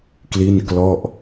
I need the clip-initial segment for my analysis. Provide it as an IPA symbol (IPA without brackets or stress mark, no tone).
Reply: k